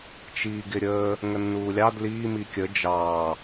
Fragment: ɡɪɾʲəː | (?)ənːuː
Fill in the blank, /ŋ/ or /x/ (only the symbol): ŋ